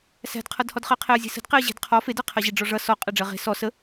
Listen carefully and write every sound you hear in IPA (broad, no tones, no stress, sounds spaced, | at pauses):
s æ̤ d qʰ ʌ d h ɔ d χ ɜ qʰ e ə̯ zʲ e̤ s ə̤ d q e ə̯ ʑ e̤ d qʰ ɔ f e d ɜ qʰ ɜ ʑ e ɖ͡ʐ ɔ ʐ ʌ s ɔ qʼ æ ɖ͡ʐ ɜ ʁ e̤ s ɔ s ə